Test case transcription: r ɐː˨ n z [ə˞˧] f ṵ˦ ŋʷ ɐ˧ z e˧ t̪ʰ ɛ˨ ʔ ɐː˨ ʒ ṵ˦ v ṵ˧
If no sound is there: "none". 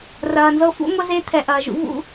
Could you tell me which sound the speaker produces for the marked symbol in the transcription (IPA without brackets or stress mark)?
ɤ˧